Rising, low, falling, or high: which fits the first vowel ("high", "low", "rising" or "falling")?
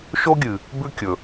high